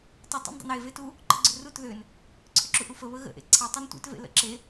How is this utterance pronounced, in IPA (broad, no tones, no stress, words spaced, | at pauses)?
tˤʏ tˤṵndˤṵne vetu | ǃə̰ɡ͡ǀʏrut ðʏn | ǀʰʏǁuʔufə βəɣə̰ ʔḛǀʰe tˤentʷḛt vḛlə̰ǁe